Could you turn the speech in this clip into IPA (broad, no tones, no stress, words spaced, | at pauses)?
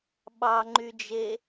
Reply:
ɓɑŋ͡ǃyd͡ʒe